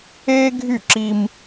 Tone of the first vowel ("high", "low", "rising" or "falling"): high